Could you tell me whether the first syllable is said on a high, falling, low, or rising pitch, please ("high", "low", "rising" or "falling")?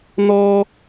high